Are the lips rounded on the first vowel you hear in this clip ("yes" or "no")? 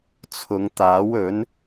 yes